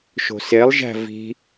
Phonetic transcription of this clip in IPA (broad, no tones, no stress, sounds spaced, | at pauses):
ʃ o̤ s e lˠ ʒ æ̤ v i̤